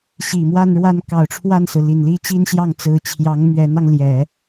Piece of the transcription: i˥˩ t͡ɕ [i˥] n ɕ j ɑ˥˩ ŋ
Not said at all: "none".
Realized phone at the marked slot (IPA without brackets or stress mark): i˥